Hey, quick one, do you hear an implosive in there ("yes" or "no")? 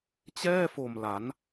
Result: no